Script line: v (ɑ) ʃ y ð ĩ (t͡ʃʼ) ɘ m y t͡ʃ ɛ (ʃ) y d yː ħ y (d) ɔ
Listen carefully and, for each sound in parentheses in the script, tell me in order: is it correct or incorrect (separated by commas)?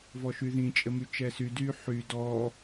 incorrect, correct, incorrect, correct